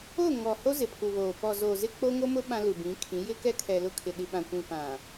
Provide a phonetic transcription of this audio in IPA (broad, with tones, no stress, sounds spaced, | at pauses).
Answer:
o˦˨ ŋ ɔ˨ h o˦ z ɪ˨ pʰ u˨ β oː˨ p ɔ˨ z o˨ z ɪ˦ k͡p o˦ ŋ o˦ m ʊ˦ ɓ ã˦ l u˨ b ĩ˨˦ kʰ ĩ˨˦ j ɪ˦ k ɛ˦ kʰ ɛ˨ l ʊ˦˨ kʰ ɪ˨ ɗ i˨ ɓ ã˨ kʷ ĩ˨ p ã˨